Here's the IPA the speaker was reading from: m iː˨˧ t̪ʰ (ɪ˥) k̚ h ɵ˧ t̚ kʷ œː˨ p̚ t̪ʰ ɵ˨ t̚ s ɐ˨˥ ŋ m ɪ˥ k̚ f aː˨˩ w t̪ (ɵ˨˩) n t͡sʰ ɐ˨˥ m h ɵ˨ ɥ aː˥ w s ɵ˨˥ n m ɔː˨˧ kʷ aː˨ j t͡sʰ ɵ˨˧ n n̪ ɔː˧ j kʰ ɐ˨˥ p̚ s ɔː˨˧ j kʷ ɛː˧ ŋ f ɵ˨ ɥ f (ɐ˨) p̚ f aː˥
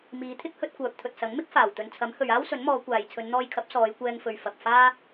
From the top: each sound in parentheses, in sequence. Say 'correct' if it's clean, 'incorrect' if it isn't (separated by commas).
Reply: correct, incorrect, correct